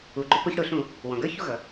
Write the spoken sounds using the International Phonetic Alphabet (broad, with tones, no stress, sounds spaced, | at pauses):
u˩ ɡ͡ǃ ʊ˧ p ʊ˧˩˧ ç ɽ ʊ˧˩˧ ɬ ũ˧˩˧ | w ɔ̃˩ ɡ ə˞˥˨ ç u˥˨ ɣ ʌ˩